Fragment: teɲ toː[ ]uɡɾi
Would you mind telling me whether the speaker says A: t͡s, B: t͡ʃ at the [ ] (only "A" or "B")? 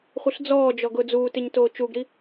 B